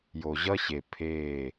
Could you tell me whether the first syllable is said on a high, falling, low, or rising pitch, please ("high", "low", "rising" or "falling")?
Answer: low